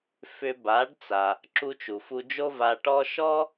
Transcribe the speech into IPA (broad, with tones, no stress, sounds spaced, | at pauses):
f ʏ˧ b a˩˥ ɖ t͡s a˩ | ǁ u˧ t͡ʃ u˩ f u˧ d͡ʒ o˥ v a˧ ʈ ɔ˥ ʃ ɔ˥